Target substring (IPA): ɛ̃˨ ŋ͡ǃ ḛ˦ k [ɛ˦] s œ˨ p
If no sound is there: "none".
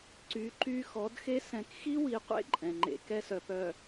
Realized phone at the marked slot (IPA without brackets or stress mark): ɛ˦